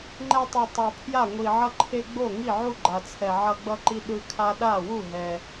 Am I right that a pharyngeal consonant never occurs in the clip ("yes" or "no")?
no